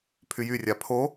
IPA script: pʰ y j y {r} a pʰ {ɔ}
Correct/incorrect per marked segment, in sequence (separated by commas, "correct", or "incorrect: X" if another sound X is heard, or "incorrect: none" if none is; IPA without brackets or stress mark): incorrect: rʲ, incorrect: o